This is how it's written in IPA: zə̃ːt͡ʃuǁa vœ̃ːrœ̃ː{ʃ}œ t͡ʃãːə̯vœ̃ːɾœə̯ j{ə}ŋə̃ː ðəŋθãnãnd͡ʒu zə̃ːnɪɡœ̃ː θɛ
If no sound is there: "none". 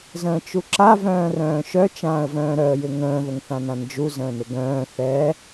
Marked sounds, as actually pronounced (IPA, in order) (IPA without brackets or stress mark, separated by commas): ʃ, ɪ